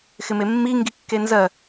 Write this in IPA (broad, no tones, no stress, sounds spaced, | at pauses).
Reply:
x ɪ m e mː i ŋ ɡ i kː e n z ɜ